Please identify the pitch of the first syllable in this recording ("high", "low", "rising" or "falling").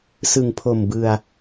low